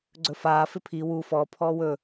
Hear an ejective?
no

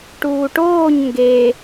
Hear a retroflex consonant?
yes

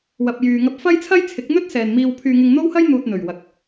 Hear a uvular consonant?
no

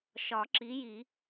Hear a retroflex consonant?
no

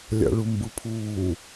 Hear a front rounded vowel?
no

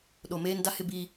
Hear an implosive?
yes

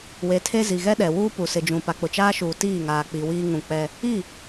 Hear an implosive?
yes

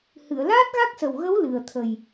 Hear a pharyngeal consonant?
no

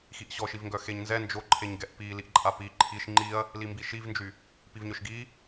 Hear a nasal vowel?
no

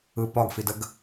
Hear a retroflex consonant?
no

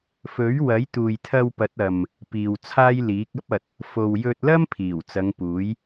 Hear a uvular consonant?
no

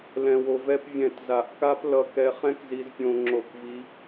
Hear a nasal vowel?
yes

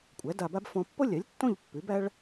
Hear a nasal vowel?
yes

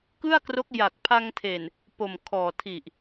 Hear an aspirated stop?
yes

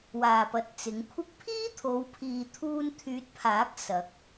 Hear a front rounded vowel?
yes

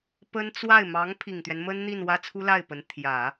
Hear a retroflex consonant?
no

